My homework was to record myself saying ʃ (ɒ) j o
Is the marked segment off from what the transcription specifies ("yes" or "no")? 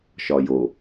no